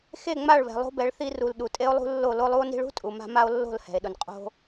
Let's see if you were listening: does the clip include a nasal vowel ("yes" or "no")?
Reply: no